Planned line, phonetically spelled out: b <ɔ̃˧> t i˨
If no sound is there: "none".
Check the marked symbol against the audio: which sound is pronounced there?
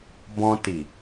ɔ̃˧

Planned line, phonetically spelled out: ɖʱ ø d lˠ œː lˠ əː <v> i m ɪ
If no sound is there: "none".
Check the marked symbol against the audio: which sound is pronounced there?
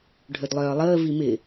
v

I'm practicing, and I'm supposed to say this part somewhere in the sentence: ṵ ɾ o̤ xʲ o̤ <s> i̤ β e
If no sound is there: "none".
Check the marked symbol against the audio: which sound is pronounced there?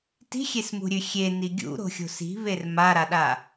s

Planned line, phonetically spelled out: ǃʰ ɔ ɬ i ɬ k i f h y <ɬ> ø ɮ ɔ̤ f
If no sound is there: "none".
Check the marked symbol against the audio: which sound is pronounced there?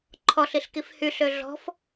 ɬ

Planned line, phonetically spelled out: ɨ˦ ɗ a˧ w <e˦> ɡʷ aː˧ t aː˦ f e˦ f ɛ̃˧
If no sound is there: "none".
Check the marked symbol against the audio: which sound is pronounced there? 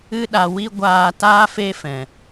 i˦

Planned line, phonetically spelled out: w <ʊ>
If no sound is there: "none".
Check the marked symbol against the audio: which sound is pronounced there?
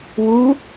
u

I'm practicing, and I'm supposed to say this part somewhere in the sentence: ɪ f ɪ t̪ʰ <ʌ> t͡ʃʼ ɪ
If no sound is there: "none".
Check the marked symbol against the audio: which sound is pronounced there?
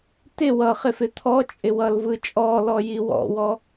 ɔ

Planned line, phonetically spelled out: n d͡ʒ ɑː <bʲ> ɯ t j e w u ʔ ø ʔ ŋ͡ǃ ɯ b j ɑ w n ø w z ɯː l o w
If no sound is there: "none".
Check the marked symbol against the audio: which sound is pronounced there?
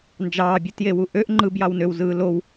bʲ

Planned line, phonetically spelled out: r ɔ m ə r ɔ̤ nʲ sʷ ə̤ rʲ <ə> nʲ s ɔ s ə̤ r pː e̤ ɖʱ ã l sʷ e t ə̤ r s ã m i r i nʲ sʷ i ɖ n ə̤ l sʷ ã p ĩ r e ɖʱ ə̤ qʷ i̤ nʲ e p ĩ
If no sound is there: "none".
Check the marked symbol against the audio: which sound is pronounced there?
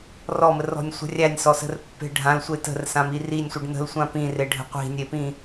æ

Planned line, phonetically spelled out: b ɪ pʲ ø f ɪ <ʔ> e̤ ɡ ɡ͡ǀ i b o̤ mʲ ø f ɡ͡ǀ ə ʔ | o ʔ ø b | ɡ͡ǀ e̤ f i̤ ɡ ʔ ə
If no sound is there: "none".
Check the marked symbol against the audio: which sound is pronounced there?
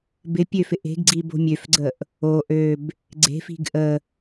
ʔ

